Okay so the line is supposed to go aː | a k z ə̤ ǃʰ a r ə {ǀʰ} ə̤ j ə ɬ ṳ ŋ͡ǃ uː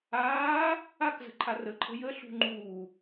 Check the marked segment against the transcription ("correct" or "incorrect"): incorrect